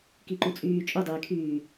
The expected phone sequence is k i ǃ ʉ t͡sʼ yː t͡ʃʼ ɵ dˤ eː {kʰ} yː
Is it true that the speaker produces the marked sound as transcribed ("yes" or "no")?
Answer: yes